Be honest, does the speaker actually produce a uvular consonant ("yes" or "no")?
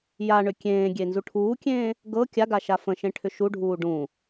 no